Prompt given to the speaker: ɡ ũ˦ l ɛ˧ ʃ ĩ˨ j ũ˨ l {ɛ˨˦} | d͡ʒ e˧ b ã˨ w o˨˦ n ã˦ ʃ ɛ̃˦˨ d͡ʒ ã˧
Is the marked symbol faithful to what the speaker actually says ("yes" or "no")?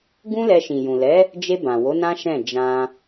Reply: yes